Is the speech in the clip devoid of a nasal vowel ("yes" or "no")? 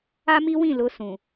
no